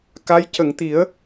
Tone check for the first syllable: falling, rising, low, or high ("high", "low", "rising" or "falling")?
rising